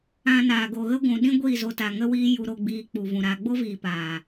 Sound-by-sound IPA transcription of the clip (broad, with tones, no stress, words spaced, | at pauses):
ã˧naː˨ ɡo˨ɣə˦ ɡʷũ˨ɗĩ˦ ɡʷiː˦˨zo˧ta˨ ŋə˦wiː˦ ju˧ɾo˧ɡ͡biː˧ k͡pu˧ vũ˨ɾaː˧ ɡ͡bo˦viː˨ paː˨